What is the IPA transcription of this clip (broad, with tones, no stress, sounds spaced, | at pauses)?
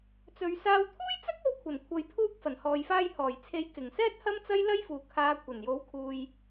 t͡s ɵ˨˧ ɥ s aː˧ w t̪ʰ uː˥ j t͡s ɐ˥ k̚ o˧ w kʷʰ ɐ˨˩ n kʷʰ ɐ˨ j pʰ uː˧ k̚ f ɐ˨˩ n h ɔː˨ j f aː˧ j h ɔː˨˩ j t͡sʰ e˨˥ j k ɪ˨˩ ŋ s ɛː˥ t̚ h ɐ˥ m t͡s ɐ˥ j l ɐ˥ j f uː˨˩ kʰ aː˨˧ kʷʰ ɐ˨˩ n j o˨˥ w kʰ uː˨ j